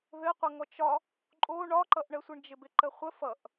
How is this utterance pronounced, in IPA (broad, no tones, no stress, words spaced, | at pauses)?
ðɘqʷʌŋɔt͡ʃ ɒ | ǃʼo ɳɒǃʌʔɳəsʷɪɳ d͡ʒɪbɪǃəχʷə fʌʔ